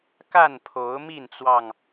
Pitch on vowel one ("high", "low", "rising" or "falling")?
falling